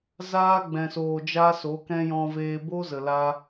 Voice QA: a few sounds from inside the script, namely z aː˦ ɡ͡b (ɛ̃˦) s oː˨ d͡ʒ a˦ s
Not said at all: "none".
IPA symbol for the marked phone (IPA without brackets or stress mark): ɛ̃˨